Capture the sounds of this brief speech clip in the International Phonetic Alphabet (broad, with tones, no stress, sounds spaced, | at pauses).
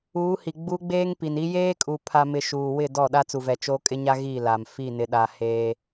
uː˨˦ h i˨ ɡ͡b u˦ ɡ͡b eː˦ ŋ p i˨ n i˦ j eː˦ kʼ u˨ pʰ a˨ m ɪ˨ ʃ uː˨ w ɪ˦˨ d ɔ˦˨ ɗ a˦ t͡s u˨ v ɛ˨ t͡ʃ oː˦ kʼ ɪ˦ ɲ a˦ ɣ i˦˨ l a˨ m f i˦˨ n ɪ˨ ɗ a˨ h eː˦